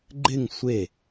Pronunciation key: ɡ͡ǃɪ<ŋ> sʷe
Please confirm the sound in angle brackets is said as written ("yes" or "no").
yes